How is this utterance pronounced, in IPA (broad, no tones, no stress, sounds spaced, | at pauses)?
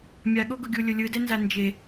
mʲ a ɠ o ɡ ʊ ɡʲ u lʲ ʊ lʲ ɯ d ɛ n z a n d͡ʒ e